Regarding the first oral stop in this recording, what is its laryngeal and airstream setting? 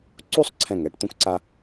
click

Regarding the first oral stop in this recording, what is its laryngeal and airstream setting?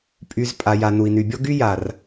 ejective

